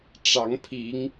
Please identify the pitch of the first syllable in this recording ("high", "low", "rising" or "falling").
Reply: rising